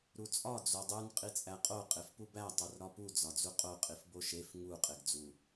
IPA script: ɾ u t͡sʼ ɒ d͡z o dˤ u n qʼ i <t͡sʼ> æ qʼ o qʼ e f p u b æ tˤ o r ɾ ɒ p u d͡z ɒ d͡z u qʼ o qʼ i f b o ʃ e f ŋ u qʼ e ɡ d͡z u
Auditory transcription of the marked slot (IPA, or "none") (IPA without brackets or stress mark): t͡sʼ